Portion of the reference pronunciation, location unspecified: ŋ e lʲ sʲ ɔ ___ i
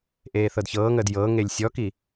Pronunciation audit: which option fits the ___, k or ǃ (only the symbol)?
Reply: k